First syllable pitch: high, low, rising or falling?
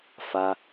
low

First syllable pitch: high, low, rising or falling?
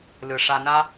low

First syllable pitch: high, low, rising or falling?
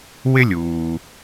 high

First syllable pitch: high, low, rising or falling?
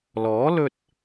rising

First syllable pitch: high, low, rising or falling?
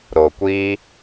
low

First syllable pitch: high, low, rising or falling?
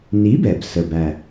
rising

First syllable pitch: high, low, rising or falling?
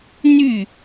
falling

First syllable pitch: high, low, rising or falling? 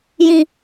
high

